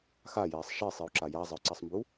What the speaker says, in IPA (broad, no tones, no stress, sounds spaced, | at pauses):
x a j ɛː sˤ ʃ e sˤ i u̯ ǁ a j a zˤ ɘ u̯ ǀ ɛ sˤ m b u